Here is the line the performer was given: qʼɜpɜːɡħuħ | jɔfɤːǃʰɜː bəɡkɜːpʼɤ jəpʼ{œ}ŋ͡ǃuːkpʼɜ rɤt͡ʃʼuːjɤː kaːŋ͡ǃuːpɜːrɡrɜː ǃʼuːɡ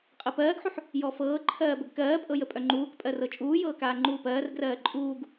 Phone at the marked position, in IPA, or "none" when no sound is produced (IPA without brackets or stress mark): œ